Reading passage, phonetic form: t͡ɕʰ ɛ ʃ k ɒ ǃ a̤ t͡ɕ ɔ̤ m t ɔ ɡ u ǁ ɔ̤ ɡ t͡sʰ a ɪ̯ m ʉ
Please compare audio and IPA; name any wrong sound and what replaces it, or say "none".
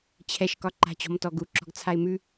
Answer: none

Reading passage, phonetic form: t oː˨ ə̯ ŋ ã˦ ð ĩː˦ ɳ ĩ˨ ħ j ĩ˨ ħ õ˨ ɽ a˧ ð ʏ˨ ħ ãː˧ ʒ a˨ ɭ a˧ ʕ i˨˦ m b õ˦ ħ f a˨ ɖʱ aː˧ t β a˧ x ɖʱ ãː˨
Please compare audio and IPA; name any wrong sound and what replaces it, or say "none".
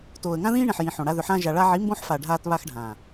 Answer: none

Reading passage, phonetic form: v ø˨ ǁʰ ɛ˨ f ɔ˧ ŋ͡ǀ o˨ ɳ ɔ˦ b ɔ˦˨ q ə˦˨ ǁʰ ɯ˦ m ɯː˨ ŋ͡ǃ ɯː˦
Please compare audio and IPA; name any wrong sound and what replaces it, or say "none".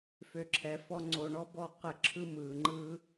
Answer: v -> f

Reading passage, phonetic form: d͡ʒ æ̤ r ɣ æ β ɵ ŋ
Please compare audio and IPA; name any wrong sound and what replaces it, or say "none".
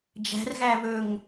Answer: none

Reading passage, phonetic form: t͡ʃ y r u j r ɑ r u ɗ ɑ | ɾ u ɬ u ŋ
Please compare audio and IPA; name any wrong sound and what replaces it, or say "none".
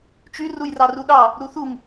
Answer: ɬ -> θ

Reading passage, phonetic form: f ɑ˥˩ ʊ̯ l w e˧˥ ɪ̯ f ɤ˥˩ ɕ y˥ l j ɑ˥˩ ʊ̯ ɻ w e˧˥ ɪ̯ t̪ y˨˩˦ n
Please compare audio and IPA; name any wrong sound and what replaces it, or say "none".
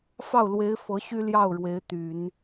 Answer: ɤ˥˩ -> ɤ˧˥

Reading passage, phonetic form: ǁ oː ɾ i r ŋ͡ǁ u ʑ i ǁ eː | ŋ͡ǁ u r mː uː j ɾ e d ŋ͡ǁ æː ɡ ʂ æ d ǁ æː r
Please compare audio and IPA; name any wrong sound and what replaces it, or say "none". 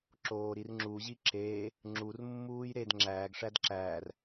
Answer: none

